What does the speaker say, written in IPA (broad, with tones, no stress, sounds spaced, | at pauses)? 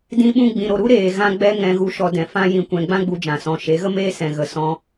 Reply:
d ĩ˦ ɓ ũ˦ ɡ͡b ĩ˧ ɾ o˧ ɾ u˦ ɾ eː˨ ɣ ã˦ ɡ͡b ɛ˦ ŋ ɛ̃˧ ɣ u˧ ʃ ɔ˧ d ɛ̃˨ f ã˦ j ĩ˧ kʷ ɛ̃˧ ɡ͡b ã˦ ɡ͡b u˧ d͡ʒ ã˨ s ɔ̃˨˦ ʃ e˨˦ ɣ ə˦ m eː˦ s ɛ̃˨ ɣ ə˨ s ɔ̃˧